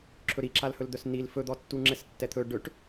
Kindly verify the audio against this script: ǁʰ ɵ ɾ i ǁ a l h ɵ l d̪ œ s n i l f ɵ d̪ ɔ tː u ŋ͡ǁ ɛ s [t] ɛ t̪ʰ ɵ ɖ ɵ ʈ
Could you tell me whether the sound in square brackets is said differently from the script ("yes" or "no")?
yes